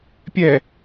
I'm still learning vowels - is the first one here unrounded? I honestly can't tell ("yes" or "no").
yes